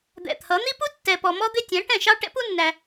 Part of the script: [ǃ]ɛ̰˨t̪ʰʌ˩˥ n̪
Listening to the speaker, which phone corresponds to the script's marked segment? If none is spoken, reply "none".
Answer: d̪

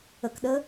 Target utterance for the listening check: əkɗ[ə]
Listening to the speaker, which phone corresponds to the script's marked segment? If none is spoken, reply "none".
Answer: ə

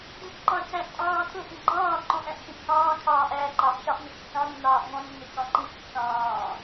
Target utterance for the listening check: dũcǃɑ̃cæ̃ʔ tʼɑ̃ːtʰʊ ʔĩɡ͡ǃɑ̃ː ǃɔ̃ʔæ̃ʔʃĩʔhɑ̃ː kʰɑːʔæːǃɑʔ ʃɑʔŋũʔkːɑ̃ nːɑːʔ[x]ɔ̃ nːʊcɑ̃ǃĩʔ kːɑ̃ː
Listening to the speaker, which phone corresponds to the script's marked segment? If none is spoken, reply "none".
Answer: ŋ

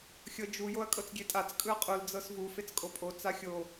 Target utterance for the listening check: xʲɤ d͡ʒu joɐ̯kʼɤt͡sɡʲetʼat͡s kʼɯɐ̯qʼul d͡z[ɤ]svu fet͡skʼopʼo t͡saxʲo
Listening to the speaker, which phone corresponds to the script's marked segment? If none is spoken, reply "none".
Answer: ɤ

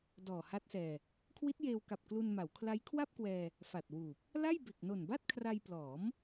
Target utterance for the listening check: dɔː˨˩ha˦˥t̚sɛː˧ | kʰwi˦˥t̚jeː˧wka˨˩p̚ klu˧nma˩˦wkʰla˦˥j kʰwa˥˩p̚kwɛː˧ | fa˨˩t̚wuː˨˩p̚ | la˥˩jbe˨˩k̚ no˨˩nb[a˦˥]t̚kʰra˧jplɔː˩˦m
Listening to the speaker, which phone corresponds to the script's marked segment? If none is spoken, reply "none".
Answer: a˥˩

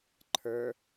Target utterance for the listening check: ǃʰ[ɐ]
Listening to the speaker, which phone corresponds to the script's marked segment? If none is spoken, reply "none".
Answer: ə˞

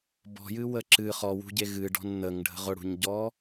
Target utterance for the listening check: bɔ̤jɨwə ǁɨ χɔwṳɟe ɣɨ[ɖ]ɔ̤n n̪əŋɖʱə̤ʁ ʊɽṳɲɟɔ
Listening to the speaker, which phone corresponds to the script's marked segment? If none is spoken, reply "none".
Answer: ɖ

